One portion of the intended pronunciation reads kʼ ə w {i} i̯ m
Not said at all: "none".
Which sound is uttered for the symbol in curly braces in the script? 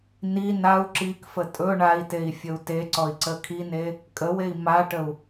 e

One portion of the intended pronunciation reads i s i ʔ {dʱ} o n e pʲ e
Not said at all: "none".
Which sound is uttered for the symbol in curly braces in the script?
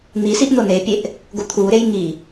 n̪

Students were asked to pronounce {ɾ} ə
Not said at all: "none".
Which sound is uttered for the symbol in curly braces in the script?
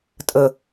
tʼ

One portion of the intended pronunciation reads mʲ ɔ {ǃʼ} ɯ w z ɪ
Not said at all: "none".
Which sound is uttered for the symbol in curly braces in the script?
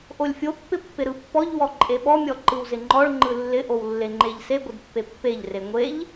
ǃ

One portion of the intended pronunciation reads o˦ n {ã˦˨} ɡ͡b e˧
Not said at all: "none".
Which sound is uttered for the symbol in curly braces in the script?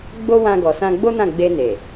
ã˦˨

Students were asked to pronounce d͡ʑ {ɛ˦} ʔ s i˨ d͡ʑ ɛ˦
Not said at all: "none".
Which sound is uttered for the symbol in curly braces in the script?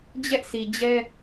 ɛ˦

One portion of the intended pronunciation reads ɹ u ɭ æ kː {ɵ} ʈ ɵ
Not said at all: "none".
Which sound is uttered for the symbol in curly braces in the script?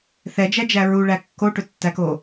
o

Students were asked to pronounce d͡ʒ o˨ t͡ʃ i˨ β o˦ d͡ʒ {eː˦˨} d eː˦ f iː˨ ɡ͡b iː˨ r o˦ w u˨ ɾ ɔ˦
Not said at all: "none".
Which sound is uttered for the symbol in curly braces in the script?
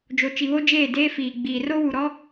eː˦˨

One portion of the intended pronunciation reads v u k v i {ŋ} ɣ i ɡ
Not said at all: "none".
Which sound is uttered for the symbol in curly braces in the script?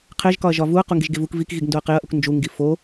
k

